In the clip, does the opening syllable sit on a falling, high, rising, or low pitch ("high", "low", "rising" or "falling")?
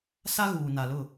high